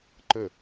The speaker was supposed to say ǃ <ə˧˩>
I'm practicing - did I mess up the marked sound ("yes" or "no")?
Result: no